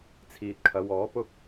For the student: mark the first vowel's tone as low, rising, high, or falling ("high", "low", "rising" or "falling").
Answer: low